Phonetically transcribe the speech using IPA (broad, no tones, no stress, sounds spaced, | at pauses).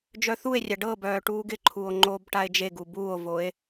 d͡ʒ œ θ u e̯ rʲ a ɖ ɤ b œː ʈ uː ɡ ɪ ǃʰ uː o̯ ŋ͡ǃ oː b ʈ a e̯ d͡ʒ e ɡ u b uː o̯ v o e̯